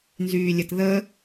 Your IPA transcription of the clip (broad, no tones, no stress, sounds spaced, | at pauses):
n z yː lʲ ə t ð ə